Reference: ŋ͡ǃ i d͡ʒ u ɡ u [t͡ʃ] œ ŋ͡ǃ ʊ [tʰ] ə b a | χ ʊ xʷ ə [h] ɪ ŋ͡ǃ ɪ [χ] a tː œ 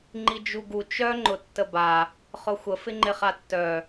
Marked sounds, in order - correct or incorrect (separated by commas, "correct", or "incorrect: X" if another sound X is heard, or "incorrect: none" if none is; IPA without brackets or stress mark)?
correct, incorrect: tː, incorrect: f, correct